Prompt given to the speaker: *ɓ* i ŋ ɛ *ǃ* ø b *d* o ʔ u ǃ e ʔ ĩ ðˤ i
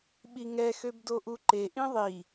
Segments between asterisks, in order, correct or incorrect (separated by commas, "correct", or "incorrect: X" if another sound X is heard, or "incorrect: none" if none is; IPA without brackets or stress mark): correct, incorrect: x, correct